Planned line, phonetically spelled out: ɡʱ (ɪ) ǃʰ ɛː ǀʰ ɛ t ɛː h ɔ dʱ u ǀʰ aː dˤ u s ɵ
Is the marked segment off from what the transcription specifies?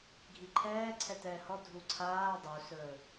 yes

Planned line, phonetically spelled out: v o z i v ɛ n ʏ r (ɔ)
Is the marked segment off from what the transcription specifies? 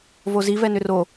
yes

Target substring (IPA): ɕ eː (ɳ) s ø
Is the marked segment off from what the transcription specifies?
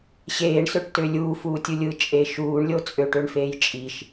no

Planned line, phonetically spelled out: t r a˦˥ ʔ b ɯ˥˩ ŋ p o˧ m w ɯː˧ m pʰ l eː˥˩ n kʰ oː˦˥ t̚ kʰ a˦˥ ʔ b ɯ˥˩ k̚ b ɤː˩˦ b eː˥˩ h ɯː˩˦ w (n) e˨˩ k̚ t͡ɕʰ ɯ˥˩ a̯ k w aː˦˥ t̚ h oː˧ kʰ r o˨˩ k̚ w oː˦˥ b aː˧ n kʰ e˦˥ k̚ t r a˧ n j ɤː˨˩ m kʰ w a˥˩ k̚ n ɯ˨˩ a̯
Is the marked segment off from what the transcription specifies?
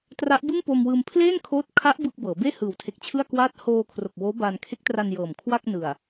yes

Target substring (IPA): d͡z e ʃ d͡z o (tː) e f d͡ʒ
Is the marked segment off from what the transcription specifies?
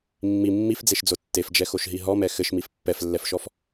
no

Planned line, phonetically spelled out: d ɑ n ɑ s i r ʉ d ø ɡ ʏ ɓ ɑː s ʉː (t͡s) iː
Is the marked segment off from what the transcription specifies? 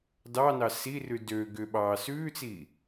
no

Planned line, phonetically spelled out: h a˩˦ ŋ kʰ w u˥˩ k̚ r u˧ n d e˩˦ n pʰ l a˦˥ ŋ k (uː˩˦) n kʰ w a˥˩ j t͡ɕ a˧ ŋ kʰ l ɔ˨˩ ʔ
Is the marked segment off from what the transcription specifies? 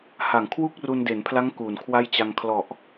no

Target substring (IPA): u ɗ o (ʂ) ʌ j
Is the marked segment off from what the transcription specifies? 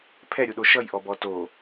yes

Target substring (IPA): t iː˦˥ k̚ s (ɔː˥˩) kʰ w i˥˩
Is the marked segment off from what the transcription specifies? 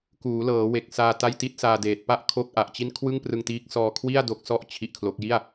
yes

